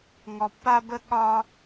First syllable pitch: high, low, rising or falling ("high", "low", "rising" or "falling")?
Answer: low